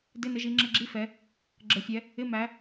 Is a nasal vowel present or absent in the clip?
absent